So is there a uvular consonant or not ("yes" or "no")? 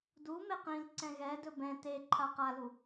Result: yes